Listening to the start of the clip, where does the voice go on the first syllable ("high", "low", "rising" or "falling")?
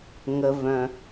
low